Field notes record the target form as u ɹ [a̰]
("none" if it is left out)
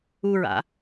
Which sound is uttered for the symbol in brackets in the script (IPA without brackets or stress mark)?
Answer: a̰